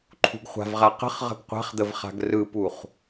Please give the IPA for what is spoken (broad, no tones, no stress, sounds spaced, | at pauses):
ǃʰ ṳ ɡ χʷ a̤ v ʁ a q ə̤ χ ʁ ə̤ ɡ qʷ a̤ χ d̪ ə v χ a̤ ɡ r ɯ p u χ